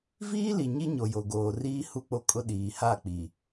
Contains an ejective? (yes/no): yes